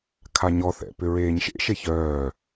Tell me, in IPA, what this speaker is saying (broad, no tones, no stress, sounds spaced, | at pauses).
kʰ a ɲ ɔ θ ɛ̰ p ʏ ɹ eː ɲ ʃ ḛ ʃ e ç œː